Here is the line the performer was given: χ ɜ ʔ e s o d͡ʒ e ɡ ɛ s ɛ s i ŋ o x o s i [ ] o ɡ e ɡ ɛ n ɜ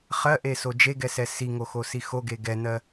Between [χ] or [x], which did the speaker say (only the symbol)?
x